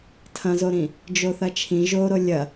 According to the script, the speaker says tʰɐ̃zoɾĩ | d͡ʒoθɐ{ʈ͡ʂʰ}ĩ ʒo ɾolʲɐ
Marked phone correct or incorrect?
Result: incorrect